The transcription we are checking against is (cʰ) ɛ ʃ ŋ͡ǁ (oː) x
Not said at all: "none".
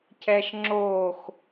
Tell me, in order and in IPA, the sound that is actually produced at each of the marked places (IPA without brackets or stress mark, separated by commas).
cʰ, oː